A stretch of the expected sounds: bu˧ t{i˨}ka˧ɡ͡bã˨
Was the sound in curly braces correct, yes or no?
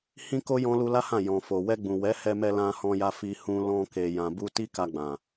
no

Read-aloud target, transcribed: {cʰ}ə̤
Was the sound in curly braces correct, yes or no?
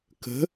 no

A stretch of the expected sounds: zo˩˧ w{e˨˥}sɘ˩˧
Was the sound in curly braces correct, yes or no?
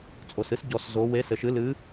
yes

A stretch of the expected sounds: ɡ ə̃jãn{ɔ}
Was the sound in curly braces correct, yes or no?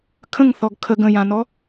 yes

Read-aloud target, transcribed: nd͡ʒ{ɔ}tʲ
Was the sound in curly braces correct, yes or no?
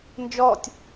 yes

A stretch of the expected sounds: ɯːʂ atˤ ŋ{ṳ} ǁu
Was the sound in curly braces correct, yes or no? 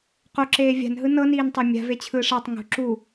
yes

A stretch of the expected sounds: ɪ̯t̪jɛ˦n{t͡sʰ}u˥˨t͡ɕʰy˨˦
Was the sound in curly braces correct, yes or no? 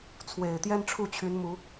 no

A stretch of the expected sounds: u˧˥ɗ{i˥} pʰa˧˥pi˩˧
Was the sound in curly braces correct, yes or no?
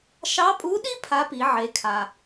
yes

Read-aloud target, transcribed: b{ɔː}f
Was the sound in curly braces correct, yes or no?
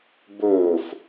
no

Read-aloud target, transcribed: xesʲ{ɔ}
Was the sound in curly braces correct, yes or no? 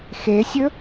no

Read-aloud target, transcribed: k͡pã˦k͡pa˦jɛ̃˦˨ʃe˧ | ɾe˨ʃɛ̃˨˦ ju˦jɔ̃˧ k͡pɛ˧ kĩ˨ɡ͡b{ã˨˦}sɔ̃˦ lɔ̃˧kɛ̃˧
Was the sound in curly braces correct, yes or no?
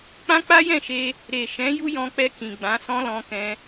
yes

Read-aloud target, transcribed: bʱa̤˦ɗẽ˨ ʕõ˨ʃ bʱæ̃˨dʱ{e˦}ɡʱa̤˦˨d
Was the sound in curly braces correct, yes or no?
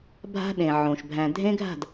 no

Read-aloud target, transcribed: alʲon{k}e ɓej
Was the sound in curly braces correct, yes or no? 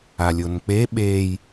no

